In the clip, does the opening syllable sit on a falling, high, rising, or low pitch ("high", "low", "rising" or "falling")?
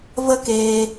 high